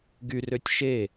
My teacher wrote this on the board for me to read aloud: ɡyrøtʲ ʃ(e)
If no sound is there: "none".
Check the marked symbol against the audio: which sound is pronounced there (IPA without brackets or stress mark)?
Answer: e